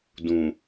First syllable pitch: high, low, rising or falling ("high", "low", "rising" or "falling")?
low